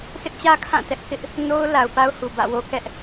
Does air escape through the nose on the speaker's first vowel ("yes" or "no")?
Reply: no